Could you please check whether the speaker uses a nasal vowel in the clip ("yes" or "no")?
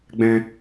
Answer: yes